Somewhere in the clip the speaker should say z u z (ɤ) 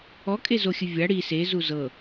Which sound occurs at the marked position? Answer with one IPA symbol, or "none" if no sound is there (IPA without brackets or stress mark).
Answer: ɤ